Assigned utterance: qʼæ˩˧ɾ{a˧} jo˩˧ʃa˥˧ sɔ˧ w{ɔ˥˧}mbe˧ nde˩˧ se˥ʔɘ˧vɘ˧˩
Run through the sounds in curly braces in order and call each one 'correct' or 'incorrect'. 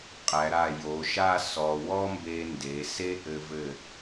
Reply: incorrect, incorrect

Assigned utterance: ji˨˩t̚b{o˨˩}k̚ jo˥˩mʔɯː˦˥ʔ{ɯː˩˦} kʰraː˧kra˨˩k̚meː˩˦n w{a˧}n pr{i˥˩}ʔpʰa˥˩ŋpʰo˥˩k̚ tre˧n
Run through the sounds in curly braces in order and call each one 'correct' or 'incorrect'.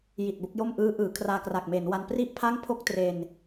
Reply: incorrect, correct, correct, correct

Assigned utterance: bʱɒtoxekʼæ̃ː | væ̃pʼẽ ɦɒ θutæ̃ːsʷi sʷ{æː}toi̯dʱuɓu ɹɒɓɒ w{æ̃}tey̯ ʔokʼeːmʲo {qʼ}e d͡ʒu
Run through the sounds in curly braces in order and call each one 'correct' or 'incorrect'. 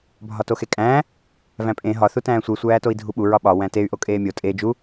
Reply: correct, correct, incorrect

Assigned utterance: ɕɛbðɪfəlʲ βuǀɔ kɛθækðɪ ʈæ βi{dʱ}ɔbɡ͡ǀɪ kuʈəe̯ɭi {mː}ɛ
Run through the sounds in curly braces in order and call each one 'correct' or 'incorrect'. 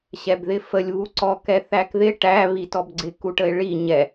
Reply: incorrect, incorrect

